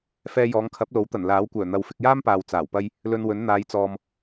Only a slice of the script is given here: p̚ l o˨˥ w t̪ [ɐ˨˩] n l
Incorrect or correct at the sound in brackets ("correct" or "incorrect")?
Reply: correct